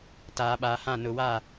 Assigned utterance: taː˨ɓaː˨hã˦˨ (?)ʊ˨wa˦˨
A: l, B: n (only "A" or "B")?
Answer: B